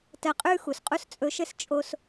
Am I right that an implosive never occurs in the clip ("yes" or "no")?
yes